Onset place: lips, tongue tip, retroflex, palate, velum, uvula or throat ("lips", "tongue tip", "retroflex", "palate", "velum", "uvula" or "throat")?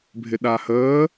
lips